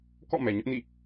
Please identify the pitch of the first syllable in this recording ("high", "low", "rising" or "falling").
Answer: falling